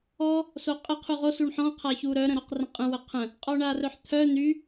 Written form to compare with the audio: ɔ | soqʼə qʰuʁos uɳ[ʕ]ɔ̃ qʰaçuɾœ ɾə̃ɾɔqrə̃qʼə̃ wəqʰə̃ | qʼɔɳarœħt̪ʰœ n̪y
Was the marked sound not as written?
yes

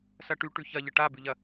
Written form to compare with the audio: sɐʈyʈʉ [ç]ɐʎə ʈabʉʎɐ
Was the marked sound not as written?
no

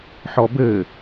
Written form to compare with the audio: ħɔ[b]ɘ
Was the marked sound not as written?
no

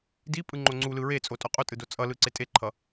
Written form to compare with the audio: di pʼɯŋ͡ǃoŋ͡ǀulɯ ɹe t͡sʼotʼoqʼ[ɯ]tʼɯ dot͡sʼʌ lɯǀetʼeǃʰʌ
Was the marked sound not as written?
yes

